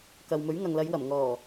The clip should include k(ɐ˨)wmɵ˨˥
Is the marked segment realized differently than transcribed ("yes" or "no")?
no